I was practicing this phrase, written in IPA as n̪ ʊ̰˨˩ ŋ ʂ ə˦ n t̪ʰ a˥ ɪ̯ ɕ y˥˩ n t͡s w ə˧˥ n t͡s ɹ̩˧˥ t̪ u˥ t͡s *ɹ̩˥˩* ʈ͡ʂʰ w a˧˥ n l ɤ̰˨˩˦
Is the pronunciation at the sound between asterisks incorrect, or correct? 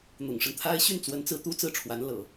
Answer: correct